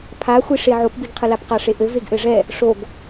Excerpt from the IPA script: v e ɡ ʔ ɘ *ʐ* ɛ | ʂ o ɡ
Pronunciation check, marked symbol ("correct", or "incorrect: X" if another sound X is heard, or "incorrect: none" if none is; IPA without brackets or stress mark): correct